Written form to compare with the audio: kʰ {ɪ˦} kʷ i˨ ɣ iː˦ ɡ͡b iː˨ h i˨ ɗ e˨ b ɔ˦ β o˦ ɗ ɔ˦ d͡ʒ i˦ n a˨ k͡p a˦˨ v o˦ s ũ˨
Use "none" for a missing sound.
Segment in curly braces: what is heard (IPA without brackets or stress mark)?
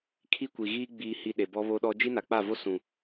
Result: i˦